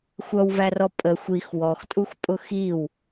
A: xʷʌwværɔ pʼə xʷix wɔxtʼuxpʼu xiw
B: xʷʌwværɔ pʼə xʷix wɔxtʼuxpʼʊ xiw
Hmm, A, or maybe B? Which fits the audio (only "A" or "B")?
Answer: B